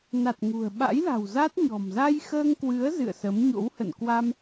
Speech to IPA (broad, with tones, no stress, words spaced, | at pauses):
na˨˩t̚ŋṳ˨˩ə̯ɓa̰˧˥jla̤˨˩w za˦˥t̚ɲɔ̤˨˩m za˧jxəː˧ŋkwɨ˨˦ə̯ zɨ̰˧˨ə̯sə˨˦m ɲo̰˧˥whə̰˧˨n kwa˧m